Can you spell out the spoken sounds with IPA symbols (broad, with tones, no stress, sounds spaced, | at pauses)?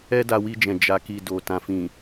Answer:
ɛ˦ d a˧ w i˧ d͡ʒ ɛ̃˨ d͡ʒ a˨ k i˨ d o˨ t ã˨ f ĩ˨